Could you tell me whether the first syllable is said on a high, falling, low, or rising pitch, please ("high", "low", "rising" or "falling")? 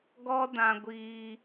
high